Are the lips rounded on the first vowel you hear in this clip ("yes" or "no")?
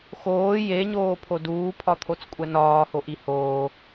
yes